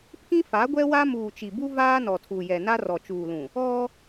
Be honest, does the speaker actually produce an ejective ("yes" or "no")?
no